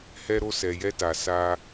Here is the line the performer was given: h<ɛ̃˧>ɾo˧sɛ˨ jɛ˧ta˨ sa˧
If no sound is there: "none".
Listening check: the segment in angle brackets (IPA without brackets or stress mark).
ɛ˧